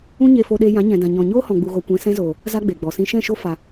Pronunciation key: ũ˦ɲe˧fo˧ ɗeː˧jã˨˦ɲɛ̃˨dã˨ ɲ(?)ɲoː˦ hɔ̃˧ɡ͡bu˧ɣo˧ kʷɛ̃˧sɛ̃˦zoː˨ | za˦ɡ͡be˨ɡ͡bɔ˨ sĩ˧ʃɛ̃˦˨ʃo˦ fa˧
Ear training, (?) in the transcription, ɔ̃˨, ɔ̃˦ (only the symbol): ɔ̃˨